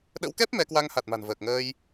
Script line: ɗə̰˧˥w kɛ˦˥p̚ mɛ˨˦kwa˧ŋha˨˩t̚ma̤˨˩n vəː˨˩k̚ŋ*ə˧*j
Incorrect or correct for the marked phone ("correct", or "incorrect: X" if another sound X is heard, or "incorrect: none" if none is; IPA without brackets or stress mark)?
incorrect: əː˧